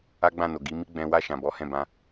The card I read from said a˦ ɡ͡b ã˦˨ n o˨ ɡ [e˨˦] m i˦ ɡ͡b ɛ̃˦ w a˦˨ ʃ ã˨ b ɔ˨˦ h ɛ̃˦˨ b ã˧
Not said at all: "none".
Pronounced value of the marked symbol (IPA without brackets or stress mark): i˨˦